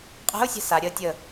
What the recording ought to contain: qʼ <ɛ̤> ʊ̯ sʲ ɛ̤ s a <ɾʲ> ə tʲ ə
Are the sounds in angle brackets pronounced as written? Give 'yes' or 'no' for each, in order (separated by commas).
yes, yes